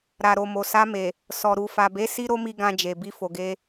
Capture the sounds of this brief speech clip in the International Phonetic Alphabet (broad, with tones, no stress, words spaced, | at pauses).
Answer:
ɾa˨ɾo˨ mo˨sa˧me˨ | sɔ˨ ɾu˨fa˨be˨˦ si˦ɾo˦mi˧ ɡã˧d͡ʒe˨ bi˧fo˨ɡe˧